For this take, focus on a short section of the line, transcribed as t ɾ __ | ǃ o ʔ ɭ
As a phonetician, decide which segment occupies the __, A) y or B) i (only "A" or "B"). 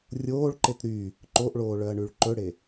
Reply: A